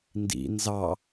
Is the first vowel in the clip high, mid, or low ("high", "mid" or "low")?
high